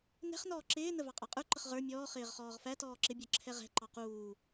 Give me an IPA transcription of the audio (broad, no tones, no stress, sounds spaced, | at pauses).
n ɛ̤ χ n ɔː ǁ ɪː n ə v ɑ qʼ ɑ qʼ ə˞ ǃ ə χ ʁ ə˞ mʲ ɔː χ ɪː ʁ χ ɔː ʁ f æ t ɔː ǁ ɪ bʲ ə˞ ǁʰ ɛ ʁ ɛ̤ ǃ ɑ q uː